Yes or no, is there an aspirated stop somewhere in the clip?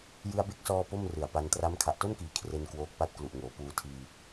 yes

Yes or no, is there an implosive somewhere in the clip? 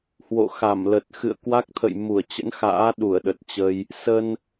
yes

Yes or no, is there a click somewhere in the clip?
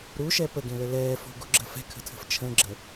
yes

